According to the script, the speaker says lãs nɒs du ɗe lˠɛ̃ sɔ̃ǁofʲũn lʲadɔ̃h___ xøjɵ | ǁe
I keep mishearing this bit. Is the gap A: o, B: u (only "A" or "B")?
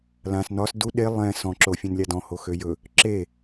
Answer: A